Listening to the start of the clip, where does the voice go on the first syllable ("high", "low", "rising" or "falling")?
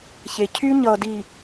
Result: low